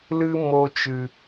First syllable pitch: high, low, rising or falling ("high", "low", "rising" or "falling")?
high